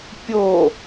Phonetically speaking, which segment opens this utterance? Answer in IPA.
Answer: pʲ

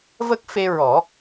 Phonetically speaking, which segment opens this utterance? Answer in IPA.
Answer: v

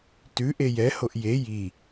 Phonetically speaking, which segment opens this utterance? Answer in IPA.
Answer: t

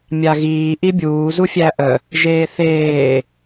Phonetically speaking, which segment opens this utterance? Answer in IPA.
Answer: mʲ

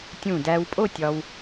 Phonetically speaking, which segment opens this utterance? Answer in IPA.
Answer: tʲ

